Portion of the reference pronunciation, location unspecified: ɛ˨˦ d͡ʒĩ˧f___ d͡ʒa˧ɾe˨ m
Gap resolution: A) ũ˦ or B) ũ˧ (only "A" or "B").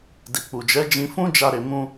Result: A